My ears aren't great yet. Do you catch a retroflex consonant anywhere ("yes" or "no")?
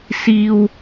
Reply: no